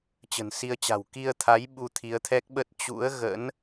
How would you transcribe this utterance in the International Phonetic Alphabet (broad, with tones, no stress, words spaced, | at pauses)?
t͡ɕə̤˨˩nsi˧ə̯t͡ɕa̤˨˩w ki˧ə̯t̪ʰa˨˦j ɓu˧t̪ʰi˨˦ə̯t̪ʰɛ˦˥k̚ɓə˦˥t̚ t͡ɕṵ˧˥ə̯ɣə̰˧˥n